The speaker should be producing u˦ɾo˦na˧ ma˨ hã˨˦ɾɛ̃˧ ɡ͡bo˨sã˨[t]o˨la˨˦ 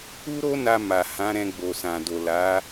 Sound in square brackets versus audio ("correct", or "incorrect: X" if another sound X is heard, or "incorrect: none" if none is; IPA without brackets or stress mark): incorrect: d